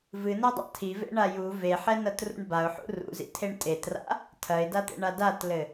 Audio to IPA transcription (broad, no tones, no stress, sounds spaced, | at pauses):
v ɨ n ɛ dˤ a̰ tʰ i v ḛ ɳ a j u v e ħ ɛ n ɐ t r ṵ ɳ b a ʊ̯ ħ ṵ r ṵ z ḭ tʰ e ɳ tʼ e t r a̰ | tʰ ɐ ɪ̯ d a t̪ ḛ ɳ a d a t l ɘ